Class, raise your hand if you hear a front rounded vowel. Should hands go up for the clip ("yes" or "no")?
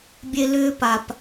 yes